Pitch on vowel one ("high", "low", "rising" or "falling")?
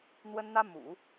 high